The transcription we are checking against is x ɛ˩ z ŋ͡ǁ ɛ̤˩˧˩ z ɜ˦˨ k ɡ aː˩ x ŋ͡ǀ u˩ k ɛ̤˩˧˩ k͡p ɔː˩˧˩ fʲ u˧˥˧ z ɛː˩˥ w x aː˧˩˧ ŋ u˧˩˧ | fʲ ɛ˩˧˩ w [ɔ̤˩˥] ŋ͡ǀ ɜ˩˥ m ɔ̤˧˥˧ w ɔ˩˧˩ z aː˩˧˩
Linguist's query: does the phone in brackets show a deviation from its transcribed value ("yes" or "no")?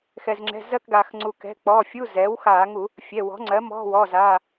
no